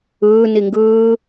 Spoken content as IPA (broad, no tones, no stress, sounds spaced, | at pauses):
ɯː n i ŋ ɡ ɯː